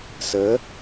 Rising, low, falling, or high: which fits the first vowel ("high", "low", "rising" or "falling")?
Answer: rising